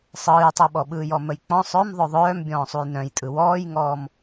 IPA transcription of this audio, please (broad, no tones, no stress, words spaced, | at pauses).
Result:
sˤɯːjtˤɯɓɔ ɓɯːjɔməjk͡pɔ̃ sˤœm ðˤœðˤœːm bʲɔ̃ːsˤujnœ̃jtʼɯ wɔːjŋɔːm